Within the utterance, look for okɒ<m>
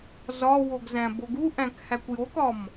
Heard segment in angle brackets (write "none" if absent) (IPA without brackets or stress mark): m